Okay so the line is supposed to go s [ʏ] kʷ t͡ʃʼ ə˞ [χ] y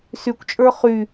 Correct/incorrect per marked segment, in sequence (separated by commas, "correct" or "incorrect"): incorrect, correct